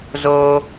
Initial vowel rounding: rounded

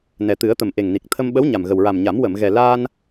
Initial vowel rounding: unrounded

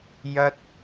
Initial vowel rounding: unrounded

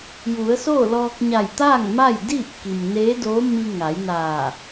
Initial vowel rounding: rounded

